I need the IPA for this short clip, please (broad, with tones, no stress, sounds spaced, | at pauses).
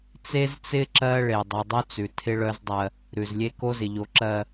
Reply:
t͡s e˦ z t͡s ɪ˦ ǁ ɜ˦ ɭ e˨ dˤ ʉ˨ dˤ œ˦ t͡s ʉ˨ tʰ ɪ˦ ɭ œ˦ z dˤ ɜ˦ | ɾ ʉ˨ z lʲ e˦ k o˦ z ɪ˨ ʎ o˨ ǁ ɜ˨